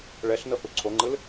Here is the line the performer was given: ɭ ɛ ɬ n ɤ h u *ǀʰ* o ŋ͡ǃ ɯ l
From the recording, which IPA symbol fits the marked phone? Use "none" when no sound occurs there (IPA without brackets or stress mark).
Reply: ǀʰ